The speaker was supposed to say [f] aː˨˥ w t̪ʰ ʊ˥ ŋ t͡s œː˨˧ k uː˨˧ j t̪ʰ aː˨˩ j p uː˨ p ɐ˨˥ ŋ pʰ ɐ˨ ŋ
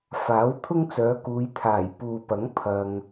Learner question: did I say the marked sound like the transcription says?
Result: yes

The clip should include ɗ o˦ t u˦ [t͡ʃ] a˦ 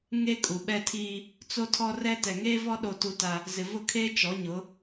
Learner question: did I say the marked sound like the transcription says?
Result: no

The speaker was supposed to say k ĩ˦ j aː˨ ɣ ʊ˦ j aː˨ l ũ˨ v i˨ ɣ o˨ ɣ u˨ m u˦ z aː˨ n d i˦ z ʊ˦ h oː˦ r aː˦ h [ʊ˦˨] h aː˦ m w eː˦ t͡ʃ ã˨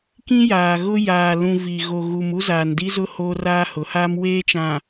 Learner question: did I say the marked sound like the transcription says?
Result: no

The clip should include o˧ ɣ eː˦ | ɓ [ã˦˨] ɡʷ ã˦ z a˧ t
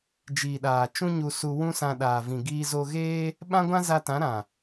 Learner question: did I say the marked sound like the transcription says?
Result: no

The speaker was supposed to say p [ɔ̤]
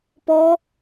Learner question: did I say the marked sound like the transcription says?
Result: no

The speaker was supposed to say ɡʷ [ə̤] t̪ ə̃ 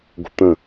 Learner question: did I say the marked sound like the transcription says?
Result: yes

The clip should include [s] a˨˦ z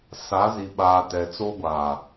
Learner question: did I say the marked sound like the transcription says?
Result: yes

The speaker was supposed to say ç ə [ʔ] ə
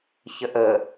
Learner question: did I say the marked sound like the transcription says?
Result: yes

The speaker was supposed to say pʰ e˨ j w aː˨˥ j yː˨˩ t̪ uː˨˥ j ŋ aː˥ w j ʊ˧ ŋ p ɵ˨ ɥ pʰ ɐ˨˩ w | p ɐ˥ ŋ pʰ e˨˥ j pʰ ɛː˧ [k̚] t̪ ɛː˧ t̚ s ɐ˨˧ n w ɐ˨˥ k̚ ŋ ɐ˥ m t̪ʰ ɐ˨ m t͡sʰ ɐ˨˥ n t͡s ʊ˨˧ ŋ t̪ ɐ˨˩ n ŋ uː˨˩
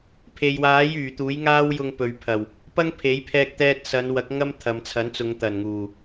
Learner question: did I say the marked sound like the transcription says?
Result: yes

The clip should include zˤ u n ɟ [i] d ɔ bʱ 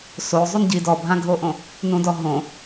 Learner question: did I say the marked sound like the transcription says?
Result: yes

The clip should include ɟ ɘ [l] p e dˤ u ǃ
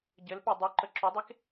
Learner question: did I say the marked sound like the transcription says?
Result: yes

